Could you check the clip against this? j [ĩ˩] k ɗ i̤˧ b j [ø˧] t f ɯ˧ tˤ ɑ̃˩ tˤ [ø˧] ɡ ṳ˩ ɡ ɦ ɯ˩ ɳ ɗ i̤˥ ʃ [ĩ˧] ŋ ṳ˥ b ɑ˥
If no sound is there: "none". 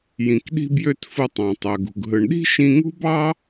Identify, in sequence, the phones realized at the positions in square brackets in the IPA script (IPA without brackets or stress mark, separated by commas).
ĩ˩, ø˧, ø˩, ĩ˧